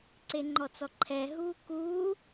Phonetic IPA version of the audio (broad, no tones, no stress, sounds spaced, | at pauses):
ǀ e ŋ͡ǃ ɔ t͡s ɔ ǃʰ ɛ ɦ uː k uː